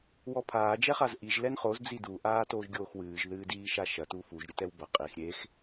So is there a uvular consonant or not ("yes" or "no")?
yes